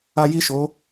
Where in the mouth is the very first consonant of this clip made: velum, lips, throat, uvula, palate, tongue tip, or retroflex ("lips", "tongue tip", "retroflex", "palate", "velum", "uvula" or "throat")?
palate